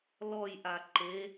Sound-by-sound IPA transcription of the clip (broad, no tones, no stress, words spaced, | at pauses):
lɔjʔa ǃe